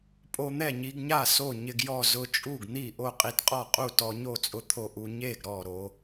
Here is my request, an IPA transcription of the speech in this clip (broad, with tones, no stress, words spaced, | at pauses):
pʼo˧n̪ɛ˥˩ɲi˧ɡɲa˥˩ so˥˩ɲɪ˧ɡjɔ˥˩ zʊ˧t͡ʃʼu˥˩ɡn̪i˥˩ ʔo˥˩qʼi˧tqʼɔ˥˩qʼu˥˩ tɔ˧ɲo˥˩t͡sʼʊ˧t̪ʰo˧ ʔu˧ ɲe˥˩ɡ ɾɔ˥˩ɾo˧